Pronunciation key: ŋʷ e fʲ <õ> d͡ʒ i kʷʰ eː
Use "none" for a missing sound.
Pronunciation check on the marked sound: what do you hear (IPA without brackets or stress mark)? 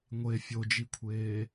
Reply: o